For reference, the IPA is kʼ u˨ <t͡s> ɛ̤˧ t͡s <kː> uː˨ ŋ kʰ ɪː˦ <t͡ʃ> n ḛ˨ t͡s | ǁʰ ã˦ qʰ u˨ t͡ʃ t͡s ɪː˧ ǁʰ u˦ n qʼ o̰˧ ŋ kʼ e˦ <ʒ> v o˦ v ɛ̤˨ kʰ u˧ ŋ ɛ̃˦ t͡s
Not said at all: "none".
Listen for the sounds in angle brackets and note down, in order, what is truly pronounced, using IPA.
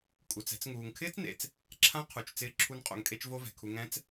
t͡s, ŋ, t͡s, t͡ʃ

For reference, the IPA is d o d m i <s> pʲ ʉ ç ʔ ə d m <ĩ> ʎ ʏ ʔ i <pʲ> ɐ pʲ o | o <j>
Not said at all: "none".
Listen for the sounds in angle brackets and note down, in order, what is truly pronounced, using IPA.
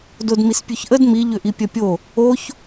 s, i, pʲ, ç

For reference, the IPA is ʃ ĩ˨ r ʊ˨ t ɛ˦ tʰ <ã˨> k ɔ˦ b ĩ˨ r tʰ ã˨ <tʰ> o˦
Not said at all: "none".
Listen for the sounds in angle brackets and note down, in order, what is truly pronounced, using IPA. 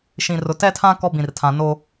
ã˦, n

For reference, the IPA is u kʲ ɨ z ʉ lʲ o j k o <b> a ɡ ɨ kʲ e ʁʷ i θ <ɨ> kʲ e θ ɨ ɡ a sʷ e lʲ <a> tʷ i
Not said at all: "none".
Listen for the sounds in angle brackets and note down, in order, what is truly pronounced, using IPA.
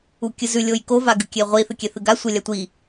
v, ɨ, a

